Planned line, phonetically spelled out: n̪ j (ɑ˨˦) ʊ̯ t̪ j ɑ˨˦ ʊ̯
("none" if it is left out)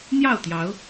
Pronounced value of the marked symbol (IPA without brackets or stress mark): ɑ˥˨